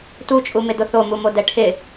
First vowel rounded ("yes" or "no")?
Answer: yes